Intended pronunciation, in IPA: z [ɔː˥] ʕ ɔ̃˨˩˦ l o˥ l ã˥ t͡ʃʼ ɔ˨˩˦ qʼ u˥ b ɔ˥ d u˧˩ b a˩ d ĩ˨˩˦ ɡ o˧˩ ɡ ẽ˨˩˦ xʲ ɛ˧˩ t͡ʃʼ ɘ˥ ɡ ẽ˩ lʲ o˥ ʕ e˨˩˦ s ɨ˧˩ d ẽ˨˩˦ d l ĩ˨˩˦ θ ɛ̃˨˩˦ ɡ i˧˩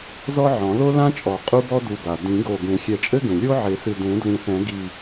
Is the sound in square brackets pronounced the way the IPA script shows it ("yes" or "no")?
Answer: no